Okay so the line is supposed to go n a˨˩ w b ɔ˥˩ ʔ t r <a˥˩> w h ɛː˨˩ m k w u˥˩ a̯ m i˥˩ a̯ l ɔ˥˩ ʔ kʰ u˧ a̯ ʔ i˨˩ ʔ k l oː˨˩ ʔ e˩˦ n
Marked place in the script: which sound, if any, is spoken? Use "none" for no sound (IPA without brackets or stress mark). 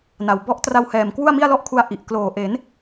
a˧